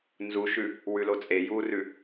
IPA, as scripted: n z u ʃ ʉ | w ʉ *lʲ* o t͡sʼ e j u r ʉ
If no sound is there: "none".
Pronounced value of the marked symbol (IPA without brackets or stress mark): l